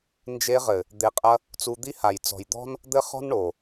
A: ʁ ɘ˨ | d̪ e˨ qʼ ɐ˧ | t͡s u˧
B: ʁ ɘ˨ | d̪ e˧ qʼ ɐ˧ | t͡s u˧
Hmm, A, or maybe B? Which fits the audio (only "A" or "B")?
A